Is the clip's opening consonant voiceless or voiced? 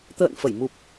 voiceless